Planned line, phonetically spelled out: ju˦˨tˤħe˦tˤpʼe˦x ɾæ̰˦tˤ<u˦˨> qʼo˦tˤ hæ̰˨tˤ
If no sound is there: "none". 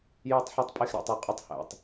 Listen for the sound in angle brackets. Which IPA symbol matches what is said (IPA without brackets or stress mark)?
u˦˨